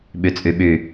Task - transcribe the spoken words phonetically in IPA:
ɓyt͡sʼyɓy

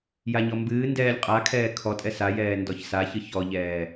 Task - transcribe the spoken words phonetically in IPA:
jaɲɔmbɨː ndɛːlʲqʼa kʰɛːkʰɔtʼɛ sajɛː ndɔçsaçɨ çɔʎɛː

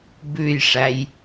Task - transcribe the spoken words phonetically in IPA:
bʉjʂæj

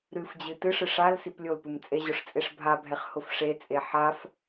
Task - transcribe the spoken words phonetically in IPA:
ɾɨfd͡ʑɨ tɨʂɨ ʂal siplʲolpɨm t͡sʼeʑʊʂ t͡sʼeʂbʱabʱɛχ hʊfʂet͡sʼe ħaf

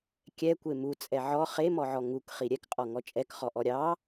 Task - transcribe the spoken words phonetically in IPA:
kʲɛkʷe mut͡sʼɛ ʕɔ χemɔʕɔ ŋukχi ɾʲɛkqʼɔŋɔ t͡ʃʼɛkχɔʔɔ ɾʲɑ

